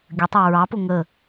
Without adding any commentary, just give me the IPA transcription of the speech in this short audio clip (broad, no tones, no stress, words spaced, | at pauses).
ɡʲətˤɑ ɹɑpʊ ŋə